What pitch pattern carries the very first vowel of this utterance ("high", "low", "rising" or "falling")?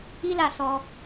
high